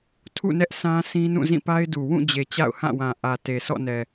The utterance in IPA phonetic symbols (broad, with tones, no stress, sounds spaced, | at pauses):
tʰ ṵ˦˨ n ɛ˦ ʔ s ã˦ s ĩ˦ n ũ˦˨ z ĩ˦˨ p a˦ ɪ̯ d u˨ w ũ˦˨ d͡ʑ e˨ t͡ɕ a̰˦˨ ʊ̯ h ã˦˨ w ã˨ ʔ ä˨ t e˨ s ɔ̰˦˨ n ɛ˨